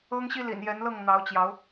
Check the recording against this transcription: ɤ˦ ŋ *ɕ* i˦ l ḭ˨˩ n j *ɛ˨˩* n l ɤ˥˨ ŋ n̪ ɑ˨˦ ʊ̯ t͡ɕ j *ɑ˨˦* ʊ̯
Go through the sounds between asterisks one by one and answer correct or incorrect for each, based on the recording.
correct, incorrect, correct

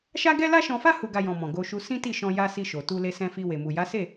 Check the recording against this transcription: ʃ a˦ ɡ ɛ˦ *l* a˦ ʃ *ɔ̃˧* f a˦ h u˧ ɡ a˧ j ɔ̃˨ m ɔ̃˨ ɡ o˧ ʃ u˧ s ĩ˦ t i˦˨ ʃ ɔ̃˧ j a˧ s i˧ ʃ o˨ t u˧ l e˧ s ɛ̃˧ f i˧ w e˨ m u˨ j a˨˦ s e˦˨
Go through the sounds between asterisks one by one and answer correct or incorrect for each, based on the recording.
correct, correct

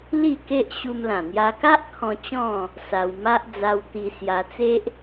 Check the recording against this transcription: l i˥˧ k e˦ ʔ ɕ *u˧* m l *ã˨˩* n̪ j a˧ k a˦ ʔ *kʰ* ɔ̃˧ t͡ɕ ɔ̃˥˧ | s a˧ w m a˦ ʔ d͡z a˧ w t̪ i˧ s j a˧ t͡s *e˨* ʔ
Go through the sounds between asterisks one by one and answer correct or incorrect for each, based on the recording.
correct, correct, correct, incorrect

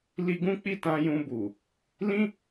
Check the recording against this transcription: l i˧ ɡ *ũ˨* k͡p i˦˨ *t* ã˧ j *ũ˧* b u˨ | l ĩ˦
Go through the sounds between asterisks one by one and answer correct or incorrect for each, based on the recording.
incorrect, correct, correct

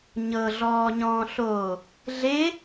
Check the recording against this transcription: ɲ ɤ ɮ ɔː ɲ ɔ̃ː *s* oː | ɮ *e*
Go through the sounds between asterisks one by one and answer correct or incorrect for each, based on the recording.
incorrect, correct

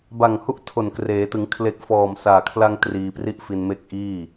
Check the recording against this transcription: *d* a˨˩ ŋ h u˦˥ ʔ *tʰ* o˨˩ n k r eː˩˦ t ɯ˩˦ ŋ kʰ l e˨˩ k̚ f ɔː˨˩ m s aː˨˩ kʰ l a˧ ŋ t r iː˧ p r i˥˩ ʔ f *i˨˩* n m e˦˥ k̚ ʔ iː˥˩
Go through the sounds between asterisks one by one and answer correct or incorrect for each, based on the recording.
incorrect, correct, incorrect

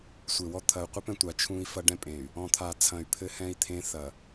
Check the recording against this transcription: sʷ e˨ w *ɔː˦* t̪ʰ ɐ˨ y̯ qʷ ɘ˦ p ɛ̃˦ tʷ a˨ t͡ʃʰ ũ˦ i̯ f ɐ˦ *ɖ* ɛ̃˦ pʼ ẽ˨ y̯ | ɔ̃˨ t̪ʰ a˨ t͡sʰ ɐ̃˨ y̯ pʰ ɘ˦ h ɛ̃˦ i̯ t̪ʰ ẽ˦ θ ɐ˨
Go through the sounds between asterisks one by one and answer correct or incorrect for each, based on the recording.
incorrect, correct

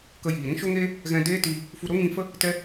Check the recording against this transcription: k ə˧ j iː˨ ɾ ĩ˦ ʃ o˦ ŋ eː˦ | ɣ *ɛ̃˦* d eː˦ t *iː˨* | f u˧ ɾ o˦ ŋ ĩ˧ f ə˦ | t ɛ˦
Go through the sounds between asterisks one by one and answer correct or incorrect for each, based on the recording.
incorrect, incorrect

